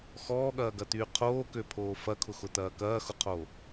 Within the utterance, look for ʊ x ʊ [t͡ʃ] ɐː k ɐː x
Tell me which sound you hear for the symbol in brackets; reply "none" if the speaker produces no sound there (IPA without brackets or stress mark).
t̪